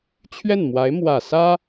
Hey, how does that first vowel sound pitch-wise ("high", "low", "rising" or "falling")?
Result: falling